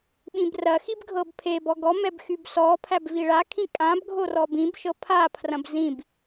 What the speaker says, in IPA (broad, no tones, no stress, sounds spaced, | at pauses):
ɓ ĩ b r ɐ x i b ɡʱ ɤ b pʰ e b ɔ ɡ ɔ m ɛ b x y b s ɔ pʰ æ b v i ɭ a kʰ ĩ kʼ ã b ɡʱ o r ɔ b ĩ b ʃ ɤ pʰ a pʰ r ɐ̃ b z ĩ b